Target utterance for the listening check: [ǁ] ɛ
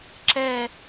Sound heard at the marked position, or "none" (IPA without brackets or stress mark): ǁ